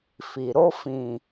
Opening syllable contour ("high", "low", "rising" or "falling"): low